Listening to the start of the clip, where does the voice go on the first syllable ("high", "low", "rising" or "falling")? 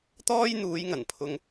high